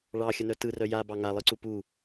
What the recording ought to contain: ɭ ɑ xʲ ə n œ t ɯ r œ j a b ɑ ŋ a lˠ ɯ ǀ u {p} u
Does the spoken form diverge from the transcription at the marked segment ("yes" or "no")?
no